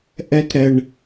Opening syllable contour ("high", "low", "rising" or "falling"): high